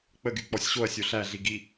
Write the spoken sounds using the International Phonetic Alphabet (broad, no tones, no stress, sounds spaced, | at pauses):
k͡p ə ɡ y k͡p ɔ sʲ ɕ o ɐ̯ sʲ o ɬ æ ɮ i ɡ i